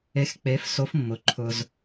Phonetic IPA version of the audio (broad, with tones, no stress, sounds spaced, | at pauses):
e˩˧ x k͡p e˩˧ f s o˩˧ f mː ʊ˩ ǃʰ ʊ˩ z